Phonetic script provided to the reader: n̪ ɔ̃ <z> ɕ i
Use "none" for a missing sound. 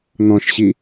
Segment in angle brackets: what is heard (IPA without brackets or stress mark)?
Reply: ʃ